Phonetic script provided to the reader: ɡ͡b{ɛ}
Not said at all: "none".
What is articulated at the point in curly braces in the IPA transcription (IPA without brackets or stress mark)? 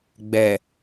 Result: ɛ